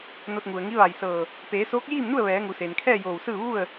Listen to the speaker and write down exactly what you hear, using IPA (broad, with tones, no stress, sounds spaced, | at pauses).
n o˧ t̚ ŋ u˩ ə̯ ŋ i˧˥ ʋ a˧˩ j s ɤː˧˩ | p eː˩˧ s oː˧˥ k̚ j iː˥˨ m n u˥˨ ə̯ ʋ ɛː˩˧ ŋ u˩ s eː˩ n kʰ ɛː˥˨ j oː˧˩ w s ɯː˥˨ ʋ u˥˨ ə̯